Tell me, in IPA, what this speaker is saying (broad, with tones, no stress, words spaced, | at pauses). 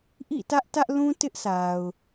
ʔḭ˦˨tä˦ʔ tä˦ʔlũ˦ tɪ˦ʔsa˨ʊ̯